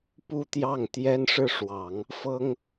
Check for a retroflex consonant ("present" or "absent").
present